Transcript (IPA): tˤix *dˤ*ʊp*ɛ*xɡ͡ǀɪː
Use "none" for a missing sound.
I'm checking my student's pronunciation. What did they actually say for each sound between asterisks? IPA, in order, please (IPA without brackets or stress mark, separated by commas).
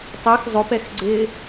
zˤ, ɛ